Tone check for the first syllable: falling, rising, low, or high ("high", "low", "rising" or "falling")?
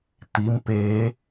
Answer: rising